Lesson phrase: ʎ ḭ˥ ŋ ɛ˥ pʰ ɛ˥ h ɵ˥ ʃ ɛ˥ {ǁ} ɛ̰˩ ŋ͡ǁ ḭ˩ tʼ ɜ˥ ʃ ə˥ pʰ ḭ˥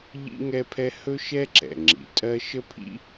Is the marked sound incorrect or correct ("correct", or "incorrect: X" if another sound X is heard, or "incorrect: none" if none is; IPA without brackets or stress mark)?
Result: correct